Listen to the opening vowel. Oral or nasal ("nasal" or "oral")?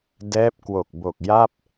oral